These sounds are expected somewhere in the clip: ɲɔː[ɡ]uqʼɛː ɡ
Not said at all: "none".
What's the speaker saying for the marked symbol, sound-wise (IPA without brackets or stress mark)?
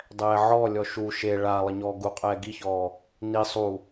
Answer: ɡ